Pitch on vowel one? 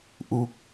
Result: falling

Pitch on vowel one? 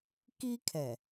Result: high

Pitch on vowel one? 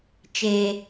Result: low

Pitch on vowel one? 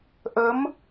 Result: rising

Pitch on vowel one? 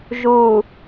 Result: low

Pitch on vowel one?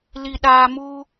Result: low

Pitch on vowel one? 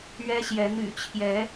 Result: high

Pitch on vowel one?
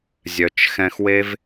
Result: low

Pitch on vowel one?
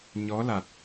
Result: rising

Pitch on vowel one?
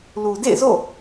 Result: low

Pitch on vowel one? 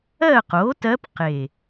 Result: falling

